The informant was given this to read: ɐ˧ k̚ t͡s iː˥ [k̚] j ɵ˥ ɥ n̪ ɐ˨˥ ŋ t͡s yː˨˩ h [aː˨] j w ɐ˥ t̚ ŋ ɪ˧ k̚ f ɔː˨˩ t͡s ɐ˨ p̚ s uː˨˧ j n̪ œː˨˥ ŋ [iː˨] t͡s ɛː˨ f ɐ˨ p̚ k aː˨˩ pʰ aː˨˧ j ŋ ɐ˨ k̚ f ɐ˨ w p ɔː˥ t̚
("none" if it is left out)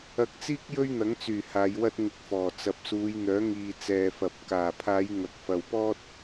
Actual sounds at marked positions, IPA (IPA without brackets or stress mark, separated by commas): k̚, aː˨˧, iː˨